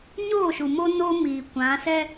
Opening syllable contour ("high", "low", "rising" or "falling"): falling